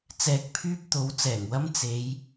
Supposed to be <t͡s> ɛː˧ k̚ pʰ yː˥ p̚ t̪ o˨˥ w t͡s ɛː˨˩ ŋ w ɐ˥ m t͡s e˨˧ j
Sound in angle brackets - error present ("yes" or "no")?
no